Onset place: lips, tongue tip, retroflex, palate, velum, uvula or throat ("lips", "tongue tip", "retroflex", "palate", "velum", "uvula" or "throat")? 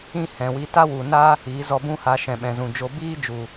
throat